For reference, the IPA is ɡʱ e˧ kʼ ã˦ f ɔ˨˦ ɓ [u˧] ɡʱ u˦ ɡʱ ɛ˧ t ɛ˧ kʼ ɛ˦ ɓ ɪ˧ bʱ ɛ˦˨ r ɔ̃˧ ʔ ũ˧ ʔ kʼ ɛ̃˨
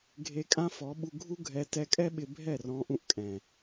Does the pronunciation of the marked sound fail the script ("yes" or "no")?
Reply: no